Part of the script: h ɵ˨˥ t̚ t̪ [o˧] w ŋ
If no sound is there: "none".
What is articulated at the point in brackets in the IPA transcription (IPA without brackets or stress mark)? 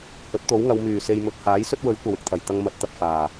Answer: o˨˥